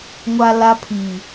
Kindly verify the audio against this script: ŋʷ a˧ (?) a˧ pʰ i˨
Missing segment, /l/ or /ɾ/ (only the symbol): l